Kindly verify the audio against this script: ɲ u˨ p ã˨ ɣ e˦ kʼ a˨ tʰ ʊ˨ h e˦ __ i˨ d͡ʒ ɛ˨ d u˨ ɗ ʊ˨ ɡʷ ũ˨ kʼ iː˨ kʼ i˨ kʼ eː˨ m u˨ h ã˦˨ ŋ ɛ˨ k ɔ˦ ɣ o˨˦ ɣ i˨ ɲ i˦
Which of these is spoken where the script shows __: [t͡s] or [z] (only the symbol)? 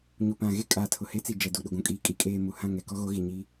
t͡s